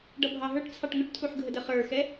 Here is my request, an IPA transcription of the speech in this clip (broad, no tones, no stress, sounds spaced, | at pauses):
ɖ ʌ bʱ ɑ ɦ ə˞ ʈ t͡sʰ ɑ ʈ ŋ ʊ ʈ tʰ u ħ ɡʱ ə d ə χ ə˞ x ɛ